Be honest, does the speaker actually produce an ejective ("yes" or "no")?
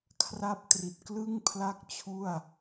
no